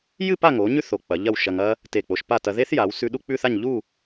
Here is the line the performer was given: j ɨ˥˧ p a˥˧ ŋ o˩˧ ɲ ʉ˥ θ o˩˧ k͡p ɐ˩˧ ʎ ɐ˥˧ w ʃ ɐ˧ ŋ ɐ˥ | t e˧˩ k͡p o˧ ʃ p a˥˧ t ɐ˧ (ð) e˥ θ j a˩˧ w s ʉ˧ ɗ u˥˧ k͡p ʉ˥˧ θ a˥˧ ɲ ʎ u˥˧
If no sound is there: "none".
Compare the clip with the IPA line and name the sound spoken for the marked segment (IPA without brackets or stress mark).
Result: ð